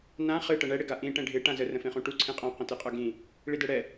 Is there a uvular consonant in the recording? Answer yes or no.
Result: yes